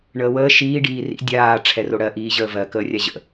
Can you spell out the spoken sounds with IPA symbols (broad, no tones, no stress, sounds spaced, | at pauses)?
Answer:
ɳ əː w əː ʃ iː ɖ iː r ḭ dʲ aː ʈ͡ʂʰ ɛ r o ɽ ɜ ʔ iː ʑ əː v ɜ k əː rʲ a ʑ ə̰